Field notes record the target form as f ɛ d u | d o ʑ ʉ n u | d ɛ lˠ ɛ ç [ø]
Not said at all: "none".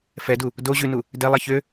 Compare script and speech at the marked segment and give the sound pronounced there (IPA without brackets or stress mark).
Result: ø